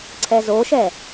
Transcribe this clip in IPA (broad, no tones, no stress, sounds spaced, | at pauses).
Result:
ǀʰ ɛ z o ʃ ɛ